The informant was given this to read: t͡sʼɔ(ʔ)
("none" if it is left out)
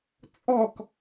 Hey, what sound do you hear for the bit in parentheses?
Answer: k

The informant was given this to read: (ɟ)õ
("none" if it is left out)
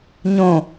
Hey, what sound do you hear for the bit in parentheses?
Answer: ɲ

